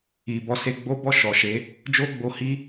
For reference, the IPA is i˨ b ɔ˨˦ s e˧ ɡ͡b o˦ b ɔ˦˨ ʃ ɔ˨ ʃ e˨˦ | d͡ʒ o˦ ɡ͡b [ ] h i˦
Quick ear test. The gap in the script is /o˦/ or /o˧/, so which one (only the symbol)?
o˧